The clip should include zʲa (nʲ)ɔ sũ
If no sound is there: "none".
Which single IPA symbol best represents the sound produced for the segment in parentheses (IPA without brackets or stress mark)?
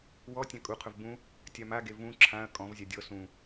dʲ